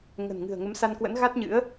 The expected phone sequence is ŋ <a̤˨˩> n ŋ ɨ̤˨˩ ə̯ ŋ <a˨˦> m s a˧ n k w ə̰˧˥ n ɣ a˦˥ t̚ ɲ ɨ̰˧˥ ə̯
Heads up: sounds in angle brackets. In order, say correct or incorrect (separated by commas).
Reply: incorrect, incorrect